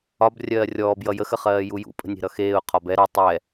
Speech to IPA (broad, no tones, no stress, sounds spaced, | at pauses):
ɒ b rʲ ɜː rʲ ɔː b j ʌ j ə x ə χ ɜː j u j ṵ pʼ ə̤ nʲ e̤ ɾ ʌ x eː ʊ̯ qʰ ɒ b ɛ ɾ ʌ tˤ ɛ